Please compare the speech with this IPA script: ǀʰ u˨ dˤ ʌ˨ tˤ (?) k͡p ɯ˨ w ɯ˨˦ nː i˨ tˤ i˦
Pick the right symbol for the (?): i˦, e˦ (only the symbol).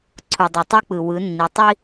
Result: i˦